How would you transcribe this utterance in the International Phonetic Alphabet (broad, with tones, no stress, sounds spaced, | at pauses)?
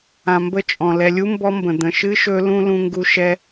ã˩ m b ə˦ t͡ʃʼ ɔ̃˩ l ɛ˨ lʲ u˥ m b ɔ˦ m b ə̃˩ d̪ ə̃˨ ʃ ɨ˥ ʃ ɵ˦ l ũ˥ l ũ˦ ŋ ɡ u˦ ʃ ɛ˦